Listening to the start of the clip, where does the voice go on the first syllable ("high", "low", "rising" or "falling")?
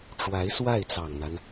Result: rising